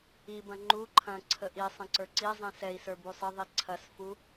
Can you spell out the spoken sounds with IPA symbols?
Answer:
ibɐ̃ ŋ͡ǃu ǃʰɐ̃ ǀʰəʔisˤɐ̃ ǀə˞ǀizˤĩ sɛi̯sə˞ busˤəðˤi ǀʰɐsfu

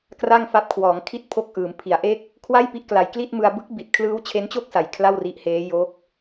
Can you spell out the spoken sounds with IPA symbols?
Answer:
kra˥˩ŋfa˦˥p̚ kʰwɔː˩˦ŋkʰi˥˩t̚ pʰo˦˥k̚ʔɯː˩˦m pʰi˩˦a̯ʔe˥˩k̚ | kʰwa˥˩jpi˦˥ʔ kla˨˩jkli˥˩t̚mɯ˧a̯ bɯ˦˥k̚bi˨˩t̚ kʰlɯː˦˥wt͡ɕʰe˦˥nt͡ɕo˥˩k̚sa˩˦j kʰla˥˩wri˦˥ʔheː˦˥ jo˦˥k̚

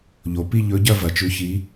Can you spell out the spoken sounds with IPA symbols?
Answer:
ʎo˩˧pi˥˧ʎɵ˧˥ɟɐ˥˧ vɐ˨˩t͡ʃʉ˧˥çi˧˥

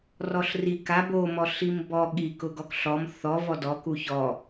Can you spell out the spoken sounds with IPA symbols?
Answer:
rɔɬri ka bo mɔɬimbɔ ɠi kʊɡɔkɬɔm θɔ vɔdɔ kuçɔ

